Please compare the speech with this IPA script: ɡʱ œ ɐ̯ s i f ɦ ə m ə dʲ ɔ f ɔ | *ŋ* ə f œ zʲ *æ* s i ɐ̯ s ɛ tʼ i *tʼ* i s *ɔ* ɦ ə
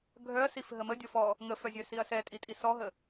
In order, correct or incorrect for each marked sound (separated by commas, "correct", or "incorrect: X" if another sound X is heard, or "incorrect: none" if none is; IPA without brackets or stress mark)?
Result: correct, incorrect: œ, correct, correct